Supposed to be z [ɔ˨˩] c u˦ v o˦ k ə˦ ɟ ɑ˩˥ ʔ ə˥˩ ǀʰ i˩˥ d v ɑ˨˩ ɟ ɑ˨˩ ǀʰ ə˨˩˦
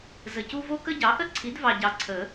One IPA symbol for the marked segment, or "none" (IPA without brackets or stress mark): ə˨˩